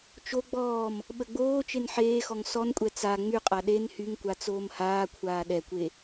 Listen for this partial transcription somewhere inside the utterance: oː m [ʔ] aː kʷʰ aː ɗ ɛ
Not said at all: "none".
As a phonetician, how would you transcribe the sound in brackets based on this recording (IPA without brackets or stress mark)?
h